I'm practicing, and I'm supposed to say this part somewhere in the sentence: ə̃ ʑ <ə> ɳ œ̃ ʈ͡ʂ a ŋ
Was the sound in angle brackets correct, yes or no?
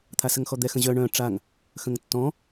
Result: no